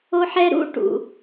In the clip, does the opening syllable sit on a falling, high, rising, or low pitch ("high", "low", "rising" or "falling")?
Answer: high